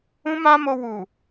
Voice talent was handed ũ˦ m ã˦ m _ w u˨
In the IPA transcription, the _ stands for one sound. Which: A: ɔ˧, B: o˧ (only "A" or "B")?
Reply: B